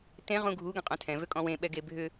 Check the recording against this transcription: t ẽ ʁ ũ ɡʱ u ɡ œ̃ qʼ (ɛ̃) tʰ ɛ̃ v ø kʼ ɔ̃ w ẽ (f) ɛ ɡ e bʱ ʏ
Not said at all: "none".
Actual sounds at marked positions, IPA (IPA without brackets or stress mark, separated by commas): œ̃, ɓ